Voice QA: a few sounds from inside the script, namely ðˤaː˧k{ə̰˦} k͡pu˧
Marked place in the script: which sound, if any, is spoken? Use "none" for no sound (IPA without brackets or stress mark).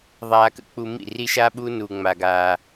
ə̰˦